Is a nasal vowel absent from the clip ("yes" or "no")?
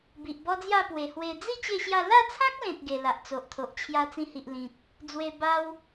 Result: no